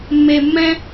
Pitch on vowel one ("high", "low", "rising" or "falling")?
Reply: high